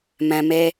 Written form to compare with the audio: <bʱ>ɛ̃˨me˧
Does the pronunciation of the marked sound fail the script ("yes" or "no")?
yes